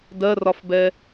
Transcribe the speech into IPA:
dɜrɒfbɛ

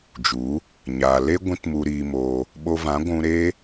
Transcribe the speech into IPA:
d͡ʒu˨˦ | ɲaː˨le˦ ɡʷĩ˦tmu˧ɾiː˧moː˧ | ɓo˧vã˨˦ɡʷũ˧ ɾe˦

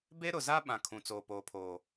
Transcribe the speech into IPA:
be˦ɾʊ˨za˦ ɓã˨ kʰũ˨t͡soː˨poː˨pʰoː˨

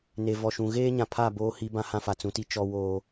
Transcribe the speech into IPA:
ne˨vɔ˨ʃũ˨ ɣeː˦ɲã˨pʰa˦˨ boː˦hi˦ bã˦hã˦fa˨ t͡sũ˨ti˦ t͡ʃɔ˦woː˦

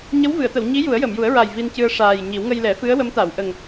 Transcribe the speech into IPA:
ɲə˧˥wvɨ˨˩˨ə̯t̪ə˨˩˨w ɲi˧˥ ju˨˩˦ə̯jə˨˩˨mju˨˩˦ə̯ɹa˨˩j vi˧ncɨ˧ə̯ ʂaː˨˩jɲi˨˩˦w ŋə˧jlɛ˨˩˦fɨ˧˥ə̯ wə˧˥mt̪a˨˩˨wʔə˨˩ŋ

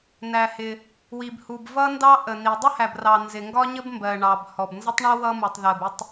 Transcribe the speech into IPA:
næ˩hɪ˩ | wi˩bhu˩b vʌ˥ndɑ˥ʔə˩ni˩ dˤə˥hæ˩brɑ˩ nzɪ˩ŋɡɒ˥ɲə˥bmbɜ˩ ɳɑ˩b hɔ˩bnzə˥tˤɳʊ˥ wʌ˥mu˩tˤðɜ˩b ɪ˥tˤ

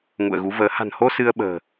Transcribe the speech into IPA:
ŋṵ˧˨ə̯ɣu˨˦vəː˨˦ ha̤˨˩nho˧ sɨ˧ə̯ɓə̤ː˨˩

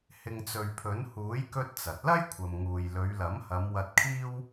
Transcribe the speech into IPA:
hɪ˨ŋt͡sɵ˨ɥ pʰɵ˨˥n huː˨˥j kɵ˧t̚ t͡sɐ˨t̚ lɐ˥jkʷʰɐ˨mŋuː˨jlɵ˨˧ɥ lɐ˨˥mhɐ˨˧m wɐ˧t̚kʰiː˥w

